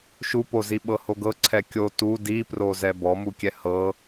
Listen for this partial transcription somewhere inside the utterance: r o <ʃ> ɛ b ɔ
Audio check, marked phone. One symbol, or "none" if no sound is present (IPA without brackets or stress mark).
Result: z